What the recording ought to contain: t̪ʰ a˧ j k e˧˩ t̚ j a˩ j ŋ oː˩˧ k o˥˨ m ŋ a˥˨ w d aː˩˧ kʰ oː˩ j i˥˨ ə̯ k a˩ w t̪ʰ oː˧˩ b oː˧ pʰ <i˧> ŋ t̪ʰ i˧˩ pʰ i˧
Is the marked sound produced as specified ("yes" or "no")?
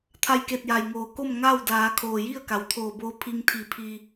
yes